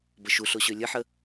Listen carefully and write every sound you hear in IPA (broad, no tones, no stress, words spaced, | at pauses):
bəʃuɬoɕø lʲəħə